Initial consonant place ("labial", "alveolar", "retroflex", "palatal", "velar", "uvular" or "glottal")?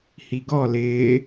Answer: glottal